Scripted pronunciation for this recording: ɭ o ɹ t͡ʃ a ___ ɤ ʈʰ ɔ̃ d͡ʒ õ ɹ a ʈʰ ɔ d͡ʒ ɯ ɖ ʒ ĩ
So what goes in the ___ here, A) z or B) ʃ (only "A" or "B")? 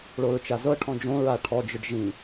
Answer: A